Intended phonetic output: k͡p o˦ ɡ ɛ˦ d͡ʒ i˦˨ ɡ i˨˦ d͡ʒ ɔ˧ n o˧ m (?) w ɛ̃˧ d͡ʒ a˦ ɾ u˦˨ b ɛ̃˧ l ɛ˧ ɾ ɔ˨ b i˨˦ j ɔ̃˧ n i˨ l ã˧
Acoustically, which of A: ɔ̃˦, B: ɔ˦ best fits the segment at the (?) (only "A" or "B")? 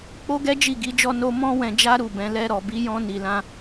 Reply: A